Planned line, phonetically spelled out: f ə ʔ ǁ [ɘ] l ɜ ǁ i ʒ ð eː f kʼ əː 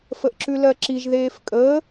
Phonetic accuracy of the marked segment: incorrect: ʉ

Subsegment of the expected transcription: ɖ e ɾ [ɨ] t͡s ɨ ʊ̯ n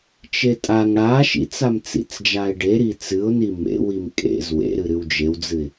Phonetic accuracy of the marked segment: incorrect: i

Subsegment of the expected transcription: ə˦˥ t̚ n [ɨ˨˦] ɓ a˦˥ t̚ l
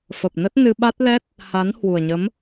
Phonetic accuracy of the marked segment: incorrect: ɨ˧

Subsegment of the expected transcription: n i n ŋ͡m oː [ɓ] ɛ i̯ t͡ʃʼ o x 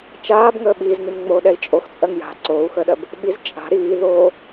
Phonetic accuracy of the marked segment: incorrect: ɗ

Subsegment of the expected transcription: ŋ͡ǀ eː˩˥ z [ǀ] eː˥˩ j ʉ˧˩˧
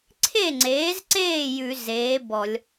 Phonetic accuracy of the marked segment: correct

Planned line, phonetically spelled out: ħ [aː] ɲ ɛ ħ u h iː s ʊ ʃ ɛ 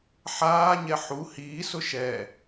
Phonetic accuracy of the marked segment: correct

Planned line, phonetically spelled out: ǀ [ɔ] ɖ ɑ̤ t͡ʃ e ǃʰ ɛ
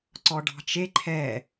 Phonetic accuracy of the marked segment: correct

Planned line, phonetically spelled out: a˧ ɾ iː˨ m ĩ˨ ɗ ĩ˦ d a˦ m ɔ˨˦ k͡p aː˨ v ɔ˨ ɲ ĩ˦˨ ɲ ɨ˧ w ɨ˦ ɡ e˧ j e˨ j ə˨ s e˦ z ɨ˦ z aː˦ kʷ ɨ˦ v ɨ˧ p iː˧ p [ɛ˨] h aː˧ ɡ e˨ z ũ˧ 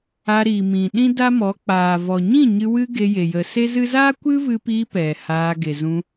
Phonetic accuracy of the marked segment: correct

